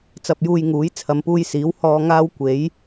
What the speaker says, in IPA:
t͡s ɐ˧ p̚ j uː˧ j ŋ uː˨˥ j t͡sʰ ɐ˨˧ m p uː˧ j s iː˨˥ w h ɔː˧ ŋ aː˧ w kʷ e˨˥ j

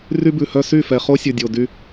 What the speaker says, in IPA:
r y˦ b ʉ˨ h œ˦ s y˦˨ f ɛ˨ χ o˦ sʲ ɵ˨ dʲ o˨ d y˦

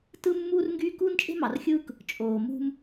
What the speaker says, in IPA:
t ɯ˦ mː uː˦ r ŋ ɡ yː˦ k uː˦ n t͡ʃʼ e̤˦ m ɑ˨ r xʲ ɯː˦ k | t͡ʃʼ oː˨ m ṳ˦ m

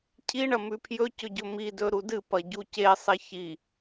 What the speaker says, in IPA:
cʰ i ɳ ɐ m ʉ pʰ j ɵ c ɵ ɟ ɵ m i d ɵ ɾ u d ɨ p ɐ ɟ u c e sˤ e ç i

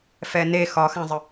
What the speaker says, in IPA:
f ɛ n e x ɒ x ã zˤ ə

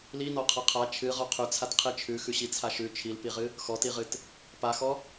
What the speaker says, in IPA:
l i n ɔ qʰ a qʰ a t͡ʃʰ ɨ ʁ ɔ qʰ ʉ t͡sʰ a t qʰ i t͡ʃʰ ʉ x ʉ ɕ i t͡sʰ a ʃ ʉ t͡ʃʰ i l p i ʁ ɨ | x ɔ t i ʁ ɨ t | p a x ɔ

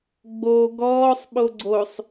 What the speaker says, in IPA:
ɡ͡b o ɡ ɔː sˤ ɓ o ɡ͡ǀ o sˤ

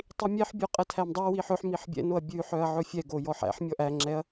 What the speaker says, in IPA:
tˤ i mʲ ɛ ħ bʲ o qʼ ɛ tʰ æ m dˤ æ w i ħ ɵ ħ m i ħ bʲ ɛ̰ n o ɐ̯ bʲ ʉ ħ œ ɐ̯ ʕ ɵ fʲ ɛ ɡ o j ɔ ħ æ̰ ħ mʲ ɔ ʔ æ ŋ͡ǁ ɛ ɐ̯

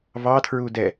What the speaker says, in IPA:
v ɑ tʰ ɹ u d ɛ

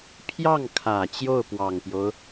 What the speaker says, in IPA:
pʰ j ɑ˥˩ ŋ kʰ ä˨˩ t͡ɕ j o˥˩ ʊ̯ p w ɑ˨˩ ŋ p j o˦ ʊ̯

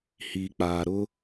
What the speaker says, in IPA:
h iː˨ k͡p aː˨ ɾ ʊ˦

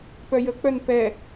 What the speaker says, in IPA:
p œ j ə k͡p œ n p ɛ

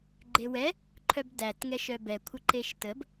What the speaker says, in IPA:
ɡ͡ǃ e w ɛ | ǃʰ œ b d æ t ŋ ɛ ʃ œ b ɛ kʷʰ ə ǃ e ʃ t ə b

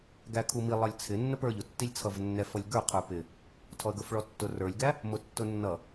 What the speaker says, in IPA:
ɡ æ kʰ u m i lˠ ʌ lʲ t͡sʰ ɪ nː ə p ə˞ ʎ ʊ tː i lʲ t͡sʰ ʌ v nː ɛ f ʌ lʲ ɡ ə˞ qʰ ə˞ p ɪ | tʰ ɔ ə̯ ɡ ə˞ f ɭ ɔ tː ʊ r ə˞ lʲ ɡ æ | m ʊ tː ʊ nː ʌ

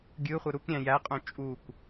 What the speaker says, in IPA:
ɡʲ ɯ χʷ ɯ ɾ u k ɾʲ æ̃ j æ qʼ õ t͡ʃʼ u kʷ

